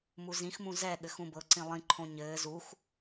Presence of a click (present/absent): present